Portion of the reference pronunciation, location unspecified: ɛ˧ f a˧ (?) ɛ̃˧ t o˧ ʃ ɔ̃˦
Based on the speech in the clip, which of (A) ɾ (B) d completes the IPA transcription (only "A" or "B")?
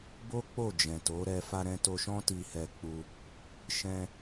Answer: A